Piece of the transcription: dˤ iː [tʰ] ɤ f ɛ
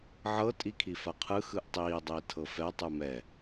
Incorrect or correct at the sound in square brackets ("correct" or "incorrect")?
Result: correct